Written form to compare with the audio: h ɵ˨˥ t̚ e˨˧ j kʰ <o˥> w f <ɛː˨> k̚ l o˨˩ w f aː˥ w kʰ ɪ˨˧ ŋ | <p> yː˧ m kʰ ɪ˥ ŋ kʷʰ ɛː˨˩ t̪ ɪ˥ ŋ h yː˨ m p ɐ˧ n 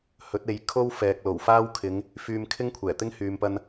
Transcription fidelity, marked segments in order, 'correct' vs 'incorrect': correct, correct, incorrect: f

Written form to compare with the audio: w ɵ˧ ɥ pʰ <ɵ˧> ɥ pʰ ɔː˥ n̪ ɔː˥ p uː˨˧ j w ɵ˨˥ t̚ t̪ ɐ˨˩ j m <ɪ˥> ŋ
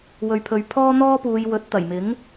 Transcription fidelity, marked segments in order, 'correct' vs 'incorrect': correct, incorrect: ɪ˨˥

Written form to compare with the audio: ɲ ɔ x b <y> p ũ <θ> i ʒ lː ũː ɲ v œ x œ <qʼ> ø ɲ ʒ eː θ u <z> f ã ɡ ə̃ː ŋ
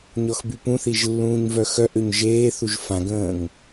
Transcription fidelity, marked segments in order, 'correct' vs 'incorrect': correct, correct, incorrect: ʔ, incorrect: ʒ

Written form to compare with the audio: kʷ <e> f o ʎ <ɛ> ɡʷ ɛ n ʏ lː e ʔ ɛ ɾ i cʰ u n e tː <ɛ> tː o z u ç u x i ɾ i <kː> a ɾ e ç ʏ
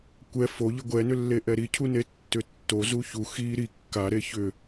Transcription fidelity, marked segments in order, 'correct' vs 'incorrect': incorrect: ɛ, incorrect: ɪ, incorrect: ʏ, correct

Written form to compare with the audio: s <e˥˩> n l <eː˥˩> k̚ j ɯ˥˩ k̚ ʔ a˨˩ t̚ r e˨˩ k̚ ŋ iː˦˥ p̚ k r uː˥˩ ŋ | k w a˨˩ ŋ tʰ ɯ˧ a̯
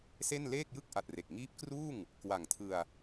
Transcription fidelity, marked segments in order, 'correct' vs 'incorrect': correct, correct

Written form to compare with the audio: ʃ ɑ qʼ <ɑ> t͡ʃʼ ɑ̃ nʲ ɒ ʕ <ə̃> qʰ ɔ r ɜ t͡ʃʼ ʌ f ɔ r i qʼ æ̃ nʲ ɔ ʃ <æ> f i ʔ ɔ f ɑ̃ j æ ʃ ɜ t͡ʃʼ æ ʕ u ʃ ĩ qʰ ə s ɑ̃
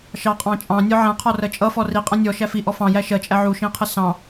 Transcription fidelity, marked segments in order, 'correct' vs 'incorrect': incorrect: ɑ̃, incorrect: æ̃, correct

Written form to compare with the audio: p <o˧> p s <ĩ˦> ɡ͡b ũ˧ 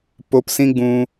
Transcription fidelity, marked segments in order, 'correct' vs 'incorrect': correct, correct

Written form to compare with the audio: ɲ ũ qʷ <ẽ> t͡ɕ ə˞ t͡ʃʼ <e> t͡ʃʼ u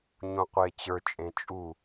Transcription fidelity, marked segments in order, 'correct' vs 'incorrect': incorrect: e, incorrect: ẽ

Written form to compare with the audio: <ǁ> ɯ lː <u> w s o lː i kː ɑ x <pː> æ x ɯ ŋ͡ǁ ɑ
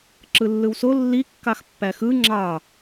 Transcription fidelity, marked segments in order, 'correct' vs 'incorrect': correct, incorrect: ɯ, correct

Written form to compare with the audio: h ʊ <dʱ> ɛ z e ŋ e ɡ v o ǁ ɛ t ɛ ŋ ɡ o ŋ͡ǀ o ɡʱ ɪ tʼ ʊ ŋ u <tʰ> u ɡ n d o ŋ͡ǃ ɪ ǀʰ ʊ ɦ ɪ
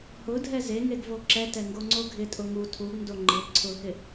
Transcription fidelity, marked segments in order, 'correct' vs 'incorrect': correct, correct

